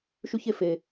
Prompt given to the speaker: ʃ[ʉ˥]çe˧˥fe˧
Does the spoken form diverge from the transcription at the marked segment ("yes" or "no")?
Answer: no